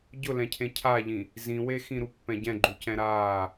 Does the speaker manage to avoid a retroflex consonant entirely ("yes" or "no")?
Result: yes